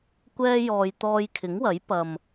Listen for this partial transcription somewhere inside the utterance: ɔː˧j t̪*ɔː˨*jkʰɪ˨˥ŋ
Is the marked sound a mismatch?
yes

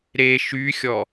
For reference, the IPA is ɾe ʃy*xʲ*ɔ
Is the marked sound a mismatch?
no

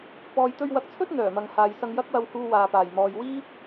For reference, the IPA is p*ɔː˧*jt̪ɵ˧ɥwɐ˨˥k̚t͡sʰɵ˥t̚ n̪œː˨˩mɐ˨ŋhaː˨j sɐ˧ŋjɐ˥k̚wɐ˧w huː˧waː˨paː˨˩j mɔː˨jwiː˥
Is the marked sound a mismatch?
yes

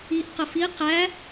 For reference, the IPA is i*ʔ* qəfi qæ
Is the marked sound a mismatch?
no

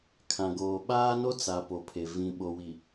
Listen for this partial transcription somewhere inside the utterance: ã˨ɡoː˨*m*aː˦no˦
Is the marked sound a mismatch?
yes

